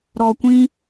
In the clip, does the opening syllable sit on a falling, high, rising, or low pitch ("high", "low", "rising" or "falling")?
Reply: low